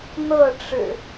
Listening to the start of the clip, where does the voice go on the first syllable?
falling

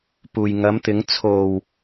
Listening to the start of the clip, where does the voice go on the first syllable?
low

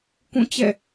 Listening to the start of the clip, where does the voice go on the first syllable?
falling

